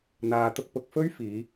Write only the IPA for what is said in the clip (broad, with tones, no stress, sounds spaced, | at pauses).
n̪ aː˨ t̪ ʊ˧ k̚ p ʊ˧ k̚ f ɵ˥ ɥ f iː˨˧